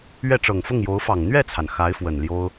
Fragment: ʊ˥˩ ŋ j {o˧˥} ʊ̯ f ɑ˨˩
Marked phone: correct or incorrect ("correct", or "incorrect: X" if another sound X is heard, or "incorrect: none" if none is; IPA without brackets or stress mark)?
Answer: correct